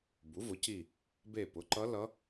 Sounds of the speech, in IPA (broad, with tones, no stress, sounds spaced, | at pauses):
b u˩˥ v ʊ˩˥ c i˦˨ | b e˦˨ p ʊ˩˥ ǃ ʌ˧˥ l ʌ˧˥